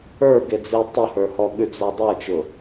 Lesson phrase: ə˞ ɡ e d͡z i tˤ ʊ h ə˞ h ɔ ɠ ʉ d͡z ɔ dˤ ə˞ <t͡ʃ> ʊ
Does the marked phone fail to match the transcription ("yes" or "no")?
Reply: no